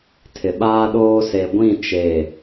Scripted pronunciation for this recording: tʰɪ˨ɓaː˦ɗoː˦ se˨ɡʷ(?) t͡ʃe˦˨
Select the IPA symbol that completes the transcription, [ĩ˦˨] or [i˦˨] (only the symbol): ĩ˦˨